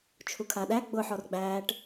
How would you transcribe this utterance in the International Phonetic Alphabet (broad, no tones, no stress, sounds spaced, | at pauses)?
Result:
t͡ʃʰ u kʰ a ɗ æ ɡ͡b ʊ ħ ɔ r ɡ͡b æː ʈ